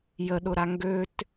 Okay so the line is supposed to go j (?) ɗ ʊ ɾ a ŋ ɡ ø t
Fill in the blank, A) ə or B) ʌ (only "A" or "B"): A